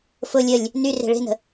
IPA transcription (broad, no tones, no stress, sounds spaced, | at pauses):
f ʊ lʲ ə lʲ | n y r e̤ ɭ e̤ n ə̤